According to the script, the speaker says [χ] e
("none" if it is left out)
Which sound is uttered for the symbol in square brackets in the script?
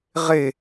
ʁ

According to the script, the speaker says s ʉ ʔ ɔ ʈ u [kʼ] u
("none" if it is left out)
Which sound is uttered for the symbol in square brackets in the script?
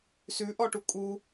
kʼ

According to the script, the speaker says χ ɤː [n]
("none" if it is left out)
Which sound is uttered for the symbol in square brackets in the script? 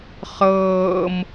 m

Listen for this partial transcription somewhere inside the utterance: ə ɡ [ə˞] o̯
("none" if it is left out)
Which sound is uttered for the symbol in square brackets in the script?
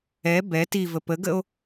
ə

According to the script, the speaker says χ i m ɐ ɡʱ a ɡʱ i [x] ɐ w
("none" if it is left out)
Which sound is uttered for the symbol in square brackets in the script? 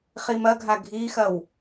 x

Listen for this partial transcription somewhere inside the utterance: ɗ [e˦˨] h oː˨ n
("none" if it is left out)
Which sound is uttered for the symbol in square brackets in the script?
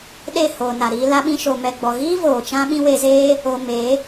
e˦˨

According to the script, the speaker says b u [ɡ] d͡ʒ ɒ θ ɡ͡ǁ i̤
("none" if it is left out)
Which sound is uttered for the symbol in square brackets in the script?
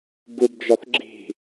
b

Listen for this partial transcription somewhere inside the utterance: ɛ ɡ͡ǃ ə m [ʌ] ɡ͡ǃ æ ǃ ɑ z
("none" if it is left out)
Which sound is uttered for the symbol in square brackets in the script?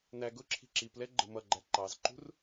ʌ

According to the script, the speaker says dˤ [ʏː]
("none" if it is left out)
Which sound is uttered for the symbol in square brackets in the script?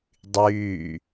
yː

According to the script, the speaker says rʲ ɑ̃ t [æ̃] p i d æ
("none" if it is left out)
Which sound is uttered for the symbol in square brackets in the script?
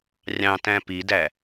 æ̃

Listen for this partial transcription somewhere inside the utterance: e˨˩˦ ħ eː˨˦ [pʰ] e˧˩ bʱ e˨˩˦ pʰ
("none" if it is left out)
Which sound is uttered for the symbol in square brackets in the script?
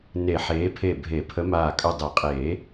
pʰ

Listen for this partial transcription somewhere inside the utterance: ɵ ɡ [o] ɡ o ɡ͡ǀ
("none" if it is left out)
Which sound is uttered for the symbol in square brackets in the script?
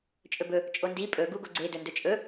u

